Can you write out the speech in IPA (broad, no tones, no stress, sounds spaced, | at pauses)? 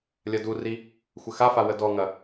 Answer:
lʲ ɐ d u r i | xʷ ə x a f a w ə d ɔ ŋ ɐ